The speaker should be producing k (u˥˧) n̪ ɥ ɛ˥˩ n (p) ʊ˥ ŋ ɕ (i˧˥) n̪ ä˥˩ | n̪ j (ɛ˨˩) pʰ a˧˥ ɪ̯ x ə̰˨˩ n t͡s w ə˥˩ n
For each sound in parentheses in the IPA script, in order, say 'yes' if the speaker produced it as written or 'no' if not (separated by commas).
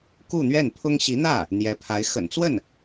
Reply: yes, no, yes, no